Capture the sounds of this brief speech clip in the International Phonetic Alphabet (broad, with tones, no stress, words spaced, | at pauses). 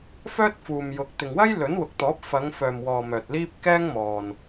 fœː˥t̚fuː˨m jʊ˨k̚ t̪ɪ˨ŋwɐ˥j lɵ˨˥nwʊ˨k̚t̪ɔː˨˥p̚ fɐ˨˧ŋfœː˨mwɔː˨ mœː˨t̚liː˥p̚ kɛː˥ŋmɔː˨n